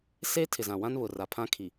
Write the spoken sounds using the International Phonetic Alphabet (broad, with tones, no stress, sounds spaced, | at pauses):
s eː˦ tʰ ɪ˨ z ã˨ w ã˦ n β ʊ˨ r a˨ pʰ ã˦ kʰ i˨